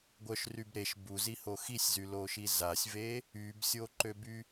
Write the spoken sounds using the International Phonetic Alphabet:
ɡʷœʃryb ɾeʃ buziho xisʲzyloʃi zasʲve | ybsʲoǃøby

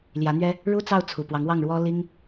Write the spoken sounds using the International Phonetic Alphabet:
ljä˧˥n̪ɥɛ˥ | ɻu˥t͡sɑ˥˩ʊ̯ t͡sʰu˨˩pwɑ˧˥ŋwɑ˥˩ŋ ɻwɔ˥ li˥ŋ

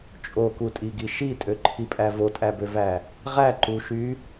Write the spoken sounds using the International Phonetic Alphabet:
t͡ʃʼokutʼiɡi ʃitʼøǃʰipʼæ votʼæbøvæ | ʁæǃuʃy

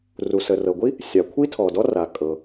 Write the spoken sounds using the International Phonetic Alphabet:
ru˩sə˩rɤ˩ɡʷi˥ | sʲa˩kʷʰi˥tʰɔ˩dɔ˥ ra˩kʼɤ˩

